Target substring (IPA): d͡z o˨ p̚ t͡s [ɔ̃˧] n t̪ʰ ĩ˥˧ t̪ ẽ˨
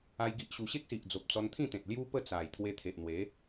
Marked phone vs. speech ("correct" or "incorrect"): incorrect